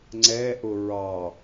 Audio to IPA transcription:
ŋ͡ǀ ɛ ʔ ʊ ɹ ɑ

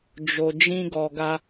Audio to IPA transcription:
d͡ʒ o˨ d͡ʒ ĩ˧ ɡ ɔ˨ ɡ a˧

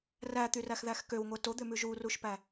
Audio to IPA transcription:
r æ t̪ y r æ x ð æ x k ø w ŋʷ ɛ t o d̪ ø m ʉ ʒ u r u ʃ p æ

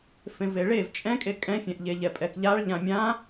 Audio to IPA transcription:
f ẽ v e ɭ e v t͡ʃʼ ɛ̃ kʼ e kʼ ɛ̃ fʲ ɛ̃ ʔ ʎ e ʎ ɛ pʼ ɛ k ʎ a ɭ ʎ ã mʲ ã

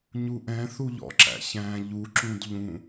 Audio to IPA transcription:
ɲ u ʔ ɛ̃ θ u ʎ ɔ̰ ǁ æ̰ ç æ̃ ʎ u ǁ ũ d ʎ ũ

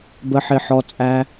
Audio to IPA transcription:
b ə˧ ħ ɪ˧ ħ ɔ˧ t͡sʼ æ˧

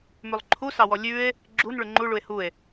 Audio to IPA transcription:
m ʉ lˠ ǃʰ u s ɑ w ɔ lʲ ʉ e̯ | ɡ͡ǁ u n ɭ ʉ ŋ͡ǃ u ɭ u e̯ h u e̯

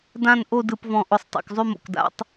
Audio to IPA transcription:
d ã˦˨ n ʔ o˦˨ d ɯ˨˩ p v ɔ̃˨˩ ʔ ʊ˨˩ sˤ tˤ o̰˨˩ k zˤ ʉ˦˨ m o̰˨˩ k d a̰˧˥˧ tˤ

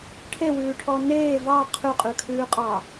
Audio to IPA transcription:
ʈʰ e w ʉː ʈʰ ɔ n eː v ɑ qʰ ʉ qʼ ʉ kʰ ʉː qʼ ɑ

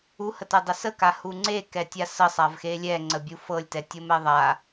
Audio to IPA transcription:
u h ə t ɛ dˤ e s ə k a h u ŋ͡ǀ e k ɛ tʲ a s ə sˤ a v x e lʲ ɛ ŋ͡ǀ ə bʲ u f ɤ lʲ t ɛ tʲ ɤ m ɛ ðˤ a

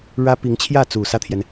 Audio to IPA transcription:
ɻ ä˥ p i˧˥ ŋ t͡ɕʰ j ä˥˩ t͡s u˨˩ s ä˥˩ t̪ʰ j ɛ˩ n

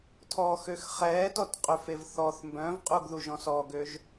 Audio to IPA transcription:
tʰ ɔ x ø x χ ɛː t ɔ t qʼ ø f e v θ ɔ θ m b œ̃ v qʼ u ɡ ð u ʒ ɔ̃ s ɔ ɡ ø ʒ

